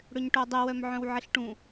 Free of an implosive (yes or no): yes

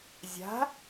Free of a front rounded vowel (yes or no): yes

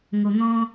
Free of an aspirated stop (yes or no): yes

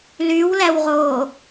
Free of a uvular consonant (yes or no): no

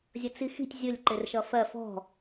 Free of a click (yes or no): no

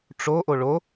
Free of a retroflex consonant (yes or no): no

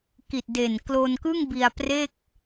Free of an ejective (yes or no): yes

